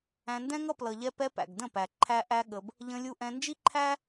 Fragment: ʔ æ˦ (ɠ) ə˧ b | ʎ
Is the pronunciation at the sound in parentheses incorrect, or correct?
correct